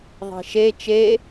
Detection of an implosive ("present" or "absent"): absent